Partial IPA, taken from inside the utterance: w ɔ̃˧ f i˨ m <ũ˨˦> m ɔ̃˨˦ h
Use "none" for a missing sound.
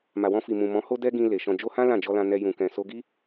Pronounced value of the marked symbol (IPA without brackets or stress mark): ũ˨